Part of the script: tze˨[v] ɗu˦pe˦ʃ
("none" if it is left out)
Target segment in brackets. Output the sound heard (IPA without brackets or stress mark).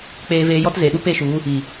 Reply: none